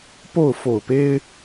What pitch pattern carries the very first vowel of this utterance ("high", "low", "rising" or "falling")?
falling